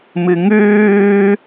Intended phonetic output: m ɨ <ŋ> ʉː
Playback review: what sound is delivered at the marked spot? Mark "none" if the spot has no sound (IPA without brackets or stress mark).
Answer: ŋ